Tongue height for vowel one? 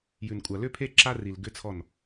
high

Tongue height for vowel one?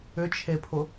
high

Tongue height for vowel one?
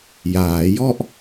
low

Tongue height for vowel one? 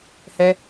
mid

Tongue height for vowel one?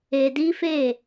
mid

